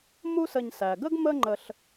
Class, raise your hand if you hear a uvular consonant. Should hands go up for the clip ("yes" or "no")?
no